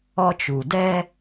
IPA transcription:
ɔ˦ t͡ʃ u˨ d ɛ˦

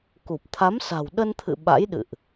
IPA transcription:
k u˨˩ p̚ t̪ʰ a˨˦ m s a̤˨˩ w ɗ ə˧ n t̪ʰ ɨ̰˧˨ ɓ a̰˧˥ j ɗ ɨ̰˧˨ ʔ

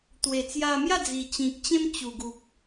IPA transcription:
t̪ w e˨˩ t͡s j a˧ m j a˥˧ d͡z i˨˩ t͡ɕ ĩ˨ k̚ t͡ɕ ẽ˦ m t͡ɕ u˨˩ ɡ u˨ k̚

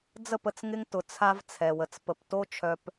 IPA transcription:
d͡z ə˦˨ p ə˨ t͡s ŋ ɪ˦ ŋ t ʊ˨ t͡sʰ a˦ v t͡sʰ ɛ˨ w ə˨ t͡s p ə˨ p t o˦ t͡ʃʰ œ˨ p

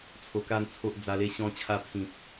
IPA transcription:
t͡sʰ o˨˩ k a˧ n t͡sʰ o˦ ʔ d͡z a˧ l e˦ ɕ ɔ̃˧ t͡ɕʰ a˧ pʰ ĩ˨ p̚

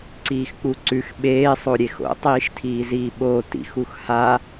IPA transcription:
ǀ iː x k͡p u ǀ ʉ x ɓ eː sˤ o ɾʲ e x o̰ tˤ iː ʃ tʰ iː z iː ɓ oː t ḭ x u x h a

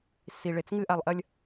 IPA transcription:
s i˨ ɭ e˨ t͡s ŋ ɨ˦ ʔ a˨ lˠ ʔ ɐ˦ lʲ

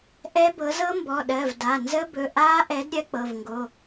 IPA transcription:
ʔ ɛ˦˥ b ɤ˨˥ z ɤ˦˥ m b ɔ˩˧˩ ɗ ɜ˩˧˩ v d a˩˧˩ n z ə˦˥ b ɵ˩˧˩ ʔ aː˦˥ ʔ ɛ˨˥ d ɾʲ ɜ˦˥ k͡p ɤ˩˧˩ v ŋ ɡ o˩˧˩

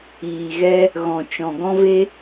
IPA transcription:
iː˨ ɣ ɛ˦ | ɣ ɔ̃˨ t͡ʃ ɔ̃˨ ɡ ɔ̃˦ v e˦

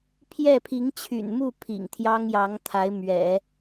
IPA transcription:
pʰ j ɛ˥˩ pʰ i˧˥ ŋ t͡ɕʰ y̰˨˩ n m u˥˩ pʰ ḭ˨˩ ŋ t̪ʰ j ɑ˥ ŋ j ɑ˧˥ ŋ t̪ʰ a˧˥ ɪ̯ m ɥ ɛ̰˨˩˦

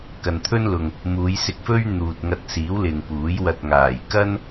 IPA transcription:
k ɐ˨ n t̪ʰ ɵ˥ n l ʊ˨ ŋ | m uː˨˧ j s ɪ˧ k̚ f ɵ˥ ɥ n̪ uː˨ t̚ ŋ ɐ˧ t̚ s iː˨˥ w l ɪ˨ ŋ p uː˨˥ j w ɐ˧ t̚ ŋ aː˨˩ j k ɐ˥ n

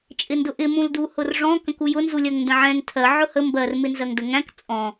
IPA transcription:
t͡ʃʼ ɪ n d ʊ ʔ ɪ m ũ l d u h ʊ r ʐ ɔ̃ k ə̃ k u j ʊ n z u lʲ ɜ ŋ n d ə̃ ʕ ɛ̃ ŋ tʰ ɜ ʕ ʊ h ə m b ɜ r m ɪ n z ɜ ŋ d ə ŋ æ̃ k t͡sʼ ɔ̃

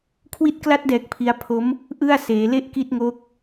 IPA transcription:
kʰ w i˦˥ t̚ k l a˦˥ t̚ d ɛː˨˩ k̚ pʰ i˦˥ a̯ pʰ o˦˥ m | ʔ ɯ˥˩ a̯ s eː˩˦ l e˥˩ ʔ k i˥˩ t̚ ŋ o˦˥ k̚

